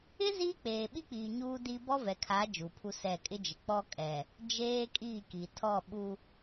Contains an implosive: yes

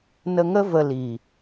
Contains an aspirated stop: no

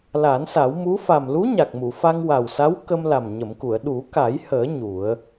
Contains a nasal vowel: no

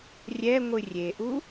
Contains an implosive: no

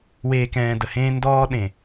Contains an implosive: yes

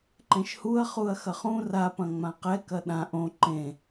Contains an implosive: yes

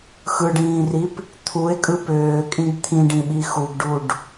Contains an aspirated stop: yes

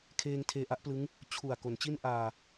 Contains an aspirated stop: yes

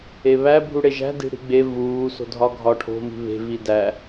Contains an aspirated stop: yes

